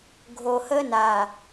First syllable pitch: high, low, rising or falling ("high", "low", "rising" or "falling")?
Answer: low